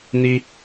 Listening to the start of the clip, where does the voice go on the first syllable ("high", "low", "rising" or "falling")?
high